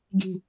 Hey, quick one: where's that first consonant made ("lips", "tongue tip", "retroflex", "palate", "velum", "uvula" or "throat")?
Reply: velum